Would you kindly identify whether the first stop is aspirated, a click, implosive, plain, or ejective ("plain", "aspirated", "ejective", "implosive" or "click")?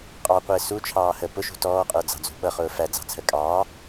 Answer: ejective